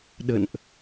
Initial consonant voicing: voiced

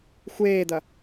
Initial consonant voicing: voiceless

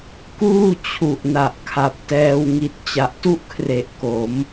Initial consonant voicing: voiceless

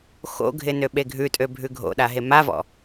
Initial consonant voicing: voiceless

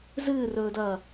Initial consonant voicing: voiced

